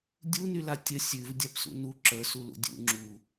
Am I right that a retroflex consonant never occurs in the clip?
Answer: yes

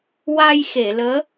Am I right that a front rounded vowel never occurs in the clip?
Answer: yes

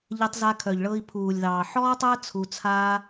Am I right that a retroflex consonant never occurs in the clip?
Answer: no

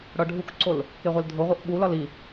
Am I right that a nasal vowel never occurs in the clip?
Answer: yes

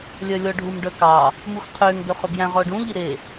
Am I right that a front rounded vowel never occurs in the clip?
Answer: no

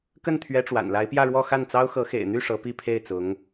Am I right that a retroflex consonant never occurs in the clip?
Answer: no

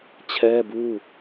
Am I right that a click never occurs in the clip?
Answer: yes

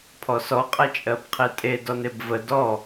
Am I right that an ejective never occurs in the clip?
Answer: no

